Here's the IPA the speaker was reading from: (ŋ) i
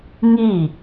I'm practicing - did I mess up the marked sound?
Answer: no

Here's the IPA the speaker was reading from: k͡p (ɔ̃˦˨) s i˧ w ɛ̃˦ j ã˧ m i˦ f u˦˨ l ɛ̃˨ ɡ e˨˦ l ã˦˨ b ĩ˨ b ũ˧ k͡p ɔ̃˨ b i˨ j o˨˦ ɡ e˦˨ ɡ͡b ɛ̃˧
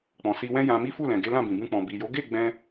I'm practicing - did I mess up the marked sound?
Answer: yes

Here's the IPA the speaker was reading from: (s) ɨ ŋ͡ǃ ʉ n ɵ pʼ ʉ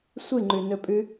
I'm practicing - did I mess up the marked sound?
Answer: yes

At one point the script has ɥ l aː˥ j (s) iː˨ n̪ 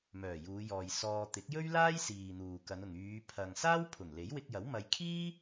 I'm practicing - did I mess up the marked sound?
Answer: no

